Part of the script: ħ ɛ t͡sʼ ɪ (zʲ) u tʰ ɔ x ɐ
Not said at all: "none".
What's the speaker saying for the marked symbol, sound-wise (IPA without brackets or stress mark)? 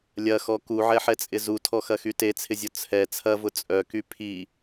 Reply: z